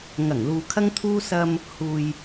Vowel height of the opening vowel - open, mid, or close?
open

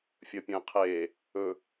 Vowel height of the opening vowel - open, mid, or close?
mid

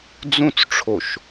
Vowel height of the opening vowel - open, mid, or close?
close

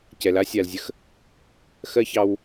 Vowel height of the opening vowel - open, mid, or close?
mid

